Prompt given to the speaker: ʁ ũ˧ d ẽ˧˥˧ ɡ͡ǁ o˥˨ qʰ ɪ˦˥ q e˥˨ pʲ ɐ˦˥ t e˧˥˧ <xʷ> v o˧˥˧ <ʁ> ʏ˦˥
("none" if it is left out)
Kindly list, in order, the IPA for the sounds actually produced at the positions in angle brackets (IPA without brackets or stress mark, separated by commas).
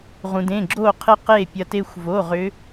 xʷ, ʁ